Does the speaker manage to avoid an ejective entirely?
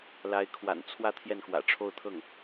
yes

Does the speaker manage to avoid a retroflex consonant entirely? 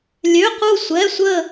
yes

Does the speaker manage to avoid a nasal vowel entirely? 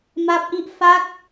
yes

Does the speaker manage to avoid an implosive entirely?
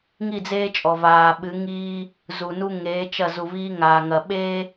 no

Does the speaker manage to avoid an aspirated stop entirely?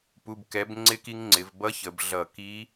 yes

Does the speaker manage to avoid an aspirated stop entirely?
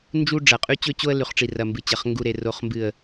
yes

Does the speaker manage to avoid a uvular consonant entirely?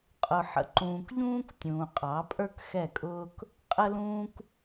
no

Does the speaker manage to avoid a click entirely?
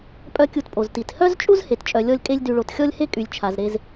yes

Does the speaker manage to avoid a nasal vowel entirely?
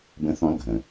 no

